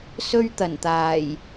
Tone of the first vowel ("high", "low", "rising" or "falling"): high